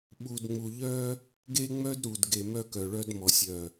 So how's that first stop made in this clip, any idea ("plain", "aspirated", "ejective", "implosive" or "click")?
implosive